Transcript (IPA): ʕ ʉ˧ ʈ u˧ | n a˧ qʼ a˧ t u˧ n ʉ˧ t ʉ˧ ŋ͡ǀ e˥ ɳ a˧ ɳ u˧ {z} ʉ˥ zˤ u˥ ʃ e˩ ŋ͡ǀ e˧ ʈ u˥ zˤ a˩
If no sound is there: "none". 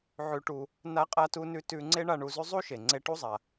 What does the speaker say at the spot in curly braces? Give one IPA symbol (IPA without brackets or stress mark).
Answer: z